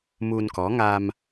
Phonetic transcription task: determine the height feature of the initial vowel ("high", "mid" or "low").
high